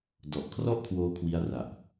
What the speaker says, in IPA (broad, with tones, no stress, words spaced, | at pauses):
dɔ˨˩ʔ kʰrɔ˥˩ʔkʰwoː˧ kʰwi˦˥a̯ra˨˩ʔ